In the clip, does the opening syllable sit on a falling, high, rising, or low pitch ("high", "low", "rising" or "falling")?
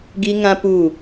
high